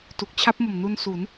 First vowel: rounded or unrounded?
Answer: rounded